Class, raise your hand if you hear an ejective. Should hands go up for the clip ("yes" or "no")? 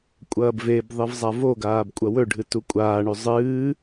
yes